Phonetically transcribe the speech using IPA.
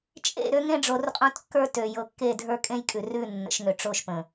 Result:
t͡ʃʼ ḛ˦˨ ɾ ø˦ ŋ ẽ˦ ɖ͡ʐ o˨˦ r qʼ õ˦ t kː ə˞˦ t ø˨ j ɤ˨ kː e˦˨ dʱ ə˞˦ kʼ ẽ˦ j kʼ ʉ˨ r ʉ˦˨ nː ə̰˨˦ ʃ ŋ ø˨ ʈ͡ʂ o˦˨ ʃ p ə̃˨

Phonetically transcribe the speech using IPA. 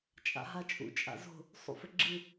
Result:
t͡ʃʼ a̰ ɦ a t͡ʃʼ ṵ t͡ʃʼ a̰ z o̤ | sˤ ṵ f ɘ ɡ͡ǁ ɨ

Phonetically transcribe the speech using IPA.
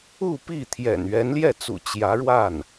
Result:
u˥˧ p i˥˩ t̪ʰ j ɛ̰˨˩ n ɥ ɛ˧˥ n l j ɛ˥˩ t͡s ṵ˨˩ t͡ɕ j ä˧˥ ɻ w a˥˩ n

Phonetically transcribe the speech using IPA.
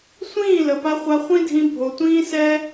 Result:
sʷ ĩː˦˨ l ə˨ p a˧ χʷ a˧ χʷ ĩ˦ dʱ ĩ˧ bʱ o˨ tʷ ĩː˦ s ɛ˦

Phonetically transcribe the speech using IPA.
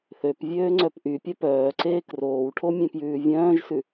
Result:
θ ø p vʲ øː ŋ͡ǀ œ p ʔ y pʲ œ p œː ǀ eː k r oː w ʈʰ o mʲ ẽ p j ʉː vʲ œ̃ː ʒ s ʉ

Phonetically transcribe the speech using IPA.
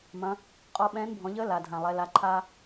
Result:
m ɐ̃˩˧ | qʼ ɔ˧ ɓ ɛ̃ː˧˥ n bʱ ɔ̃˩˧ ʎ əː˧˥ l a˩ dʱ ã˩ lˠ ɛ˩˧ l a˩˧ ǃʰ aː˧

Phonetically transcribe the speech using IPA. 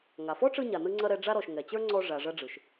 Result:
ŋ a˩ f ɔ˥ ʈ͡ʂ ɯ˧ ɲ a˩ n ɯ˧ ŋ͡ǀ ɐ˧ ɾ ɛ˧ ɖ͡ʐ a˧ ɾ ɔ˩ ʃ ŋ ɛ˩ t͡ɕ ə˞˥ ŋ͡ǀ ɔ˧ ʐ a˩ ʐ ɐ˧ ɖ͡ʐ ɯ˩ ʃ

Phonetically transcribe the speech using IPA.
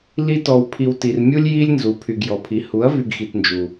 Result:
l i˧ t ɔ˨ w pʰ i˨ w t i˨ r mʲ u˦ lʲ j i˦ lʲ n z u˨˦ pʰ y˨ ɡ j ɔ˨ pʰ i˨˦ h u˨˦ ɐ̯ v y˧ ɡ x i˨ t n d͡ʒ u˨

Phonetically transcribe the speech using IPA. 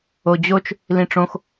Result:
o d͡ʑ o t͡ʃ | l ĩ ʈ͡ʂ õ x

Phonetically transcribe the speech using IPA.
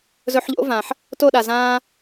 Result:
z ɵ˧ ħ ʎ o̰˦ v ã˨ ħ | t o˦˨ ɗ a˨ z ãː˦

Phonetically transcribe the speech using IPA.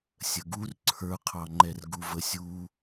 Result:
sʲ ə ɡ u r ǀʰ ə˞ qʰ ɑ ŋ͡ǃ ɛ r ɡ u v ə sʲ u

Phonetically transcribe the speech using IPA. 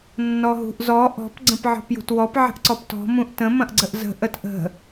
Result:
nː ɔ ɦ ṳ ʔ z ɔ ʔ ɔ̤ p ɡ͡ǀ ə̃ p ʕ ɔ̤ p j ṳ t w ɔ p ʕ ə̤ ʔ ǀ ɔ p t ɔ̤ m ũ ʔ t ə̃ m ɐ̃ ʔ ɡ͡ǀ ə ʔ z ə̤ ʔ ə t ʔ ə̤

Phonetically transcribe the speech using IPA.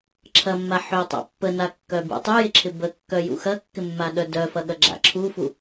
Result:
ǁʰ ɐ mː a ħ ʏ tˤ a̰ pː ə n a kː œ b ṵ tˤ y j ɪ ǁʰ ɪ b ə kː œ j ṵ x ɐ kː ɪ mː a ɗ œ d œ f ɐ ɠ ɐ ɡ͡ǁ a̰ ǁʰ u f u

